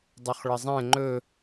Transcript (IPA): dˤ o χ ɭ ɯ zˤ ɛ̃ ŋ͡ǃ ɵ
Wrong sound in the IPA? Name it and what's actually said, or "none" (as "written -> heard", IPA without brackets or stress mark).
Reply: ɯ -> ə